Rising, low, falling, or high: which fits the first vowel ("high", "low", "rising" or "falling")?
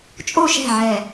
falling